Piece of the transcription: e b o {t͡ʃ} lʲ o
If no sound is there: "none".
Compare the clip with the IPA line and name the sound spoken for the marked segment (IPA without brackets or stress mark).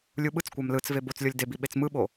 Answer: t͡s